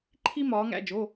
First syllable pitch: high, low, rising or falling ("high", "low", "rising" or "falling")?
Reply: high